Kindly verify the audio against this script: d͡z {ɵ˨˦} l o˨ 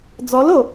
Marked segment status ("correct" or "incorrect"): incorrect